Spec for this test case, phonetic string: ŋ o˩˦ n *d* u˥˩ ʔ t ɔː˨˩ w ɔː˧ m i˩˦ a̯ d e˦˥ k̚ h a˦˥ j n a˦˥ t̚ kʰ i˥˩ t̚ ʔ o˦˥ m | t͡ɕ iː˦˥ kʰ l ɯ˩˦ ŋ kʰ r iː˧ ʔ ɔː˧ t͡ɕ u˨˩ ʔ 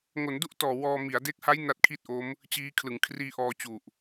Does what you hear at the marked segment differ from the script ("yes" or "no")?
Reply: no